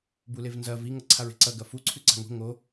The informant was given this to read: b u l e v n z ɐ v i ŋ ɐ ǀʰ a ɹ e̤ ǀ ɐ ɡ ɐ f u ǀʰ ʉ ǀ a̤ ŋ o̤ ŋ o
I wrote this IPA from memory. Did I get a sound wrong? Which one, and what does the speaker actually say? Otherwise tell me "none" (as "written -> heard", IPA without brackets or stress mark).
none